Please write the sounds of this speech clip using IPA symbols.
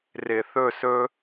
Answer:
r ɪ˧ θ ɵ˥˧ s ɵ˥

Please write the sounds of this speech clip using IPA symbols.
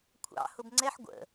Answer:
kʷʰ ɑ̰ h ʊ b ŋ͡ǀ ɛ ħ ɡʷ ə̰

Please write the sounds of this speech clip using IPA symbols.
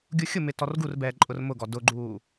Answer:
ɡʲ u xʲ ʊ m ɪ t ɔ r ɡ u r b ɛː ǃʼ ʊ r m ʊ ɡ ɔ d ʊ ɡ͡ǃ uː

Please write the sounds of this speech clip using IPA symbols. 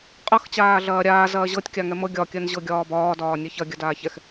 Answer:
qʼ ɤ x t͡ɕ aː ɮ ɐː ɾʲ aː z ɐː ʑ ɤ tʲ kʲ a ŋ ɛ m ɤ ɡʲ ɒ kʲ ɜ n ʑ ɤ ɡʲ ɒː b ɒː d ɒː nʲ ɛ ç ɐ ɡʲ ɐ d aː ç ɛ x

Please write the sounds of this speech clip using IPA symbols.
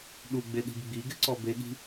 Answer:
ɗ u ɡ͡b e ɗ i̤ b ɡ͡b i ɡ ɪ ǀ ɔ b e ɠ i̤

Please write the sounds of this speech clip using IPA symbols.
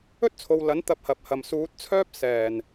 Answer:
ɵ˥ t̚ t͡sʰ o˨ w l ɐ˨˥ n t̪ ɐ˧ p̚ h ɐ˨ p̚ h ɐ˨ m s uː˨˥ t̚ t͡sʰ œː˥ p̚ s ɛː˨˩ n

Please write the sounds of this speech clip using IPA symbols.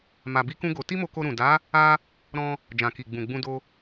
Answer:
m a˧ b i˦ k ũ˦ ɡ o˧ t i˦ m o˧ k o˧ ɾ ũ˨ d a˨˦ | a˧ | ɾ ɔ̃˧ | d͡ʒ ã˨ k i˨ ɡ͡b ũ˨ ɡ͡b ũ˧ d o˧

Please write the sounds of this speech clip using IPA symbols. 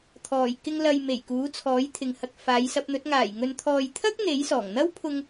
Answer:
t̪ʰ ɔː˨˩ j k ɪ˧ ŋ l ɐ˨ j m e˨˩ j k uː˨˥ t͡sʰ ɔː˨˥ j t̪ʰ ɪ˨ ŋ h ɐ˨ k̚ f aː˨˧ j s ɐ˧ p̚ n̪ ɵ˨˥ t̚ ŋ aː˨˩ j ŋ ɵ˨ n t̪ʰ ɔː˨ j t̪ʰ ɐ˥ k̚ n̪ e˨˥ j s ɔː˨˩ ŋ n̪ ɐ˥ w pʰ ʊ˧ ŋ

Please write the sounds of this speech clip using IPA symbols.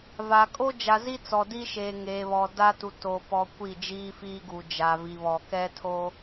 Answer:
v a˨ kʼ o˦ d͡ʒ a˨ z i˦ t͡s ɔ˨ d i˦ ʃ eː˨ ŋ eː˨ β ɔ˨ d a˦ t u˨ t o˨ p ɔ˨ kʷ i˦˨ d͡ʒ iː˦ f iː˦ ɡ u˨ d͡ʒ a˨ v i˨ β ɔ˨ k ɛ˦ tʰ o˦

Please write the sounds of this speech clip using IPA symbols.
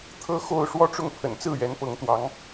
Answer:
t̪ʰ ɤ˥ x o˥˧ ʊ̯ ʂ w ɔ˥˧ ʈ͡ʂ ʊ˥˩ ŋ pʰ ə̰˨˩ n t͡s ɹ̩˥˩ ɥ ɛ˧˥ n p ɤ˧˥ ŋ t̪ w ɑ˧˥ ŋ

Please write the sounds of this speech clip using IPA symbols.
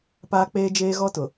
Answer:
p aː˦ k͡p eː˦ d͡ʒ eː˦ ɣ ɔ˦ t ʊ˨

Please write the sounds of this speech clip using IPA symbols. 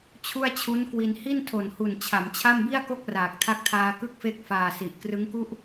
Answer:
t͡ɕʰ u˥˩ a̯ t͡ɕʰ u˦˥ n k w i˧ n h i˥˩ n tʰ o˨˩ n h u˨˩ n t͡ɕʰ a˩˦ m t͡ɕʰ a˥˩ m b i˥˩ a̯ k o˥˩ k̚ r aː˨˩ k̚ tʰ a˦˥ k̚ tʰ aː˧ k ɯ˦˥ k̚ f e˦˥ k̚ f aː˨˩ s i˨˩ ʔ k r ɯ˦˥ ŋ k u˥˩ ʔ

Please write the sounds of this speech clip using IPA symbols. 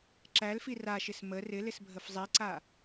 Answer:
ǁ æ l f i r a ʃ ɪ s m ə r ɪ l ɪ s bʱ ə f zˤ i ǀ a

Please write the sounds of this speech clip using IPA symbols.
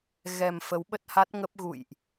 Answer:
ɣ ɛ˨˩ m f ə˨˦ w ɓ ə˦˥ t̚ h a˦˥ t̚ ŋ ə˦˥ p̚ ɣ ṵ˧˨ j ʔ

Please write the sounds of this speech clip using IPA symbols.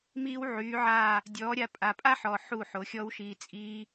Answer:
m iː˦ w ʕ yː˨˦ ʕ aː˦˨ | dʲ ɔː˨˦ ɾʲ a˧ pʼ a˨ pʼ a˦ ħ ɔ˨ ħ u˦˨ ħ o˨˦ xʲ ɔ˦ w ʃ iː˧ t͡sʼ iː˦

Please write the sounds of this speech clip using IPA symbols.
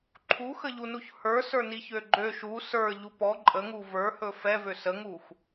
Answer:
ǃʰ u x ə ʎ u n u ç h ə˞ s ə˞ n i ç ø ɡ͡ǃ ø ʃ u s ə˞ ʎ u p ɔ ǃʼ ə ŋ u v ə˞ h ɵ f ɛ v ø s ə ŋ u x

